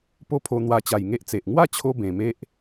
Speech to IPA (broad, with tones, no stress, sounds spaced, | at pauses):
p o˦ pʰ o˧ n̪ w a˧ t͡ɕ a˨˩ j ŋ e˦ ʔ t͡s e˨ ʔ ŋ w a˥˧ t͡ɕʰ o˧ b ẽ˨˩ m e˦ ʔ